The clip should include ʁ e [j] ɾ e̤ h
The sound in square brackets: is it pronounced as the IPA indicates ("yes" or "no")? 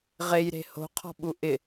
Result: yes